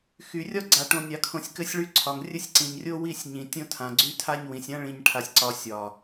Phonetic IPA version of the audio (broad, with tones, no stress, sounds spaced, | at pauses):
x y˨ rʲ ɒ˦ ɡ͡ǀ a˨ ʈ õ˨ nʲ a˨ kʰ õ˨ sʲ k ɘ˦ sʲ ɭ y˦ ǀʰ ɒ˨ ŋ rʲ ɘ˦ sʲ ǀ ĩ˨ ɲ rʲ o˦ w i˦˨ sʲ ɲ ĩ˨ tʲ õ˦ tʰ ã˨ ɡ͡ǀ y˦ tʰ a˦ ɲ w ĩ˨ sʲ ã˦ ɭ ĩ˨ ɲ ʈʰ a˨ sʲ ǀ ɒ˨ sʲ ɒ˨